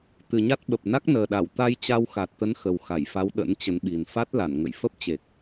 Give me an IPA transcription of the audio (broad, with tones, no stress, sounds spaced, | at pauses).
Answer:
t̪ ɨ˨˩ ɲ a˦˥ t̚ ɓ ə˨˩ p̚ n a˦˥ k̚ n əː˨˩ ɗ a˧˩ w t̪ a˧ j t͡ɕ a˧ w x a˨˩ t̚ t̪ ə˨˦ n x ə˨˩ w x a˧˩ j f a˨˦ w ɗ ə̰˧˥ n t͡ɕ ə˨˦ n ɓ i˨˩ n f a˦˥ t̚ l a˧˩ n ŋ ə̰˧˨ j f ə˦˥ p̚ t͡ɕ e˨˩ k̚